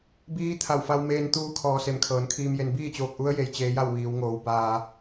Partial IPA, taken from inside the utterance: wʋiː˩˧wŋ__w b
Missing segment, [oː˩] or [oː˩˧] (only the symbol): oː˩˧